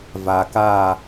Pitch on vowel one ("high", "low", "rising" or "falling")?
low